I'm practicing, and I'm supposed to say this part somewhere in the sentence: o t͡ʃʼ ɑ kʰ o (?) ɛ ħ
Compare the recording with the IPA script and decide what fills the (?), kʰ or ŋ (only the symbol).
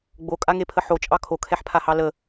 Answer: kʰ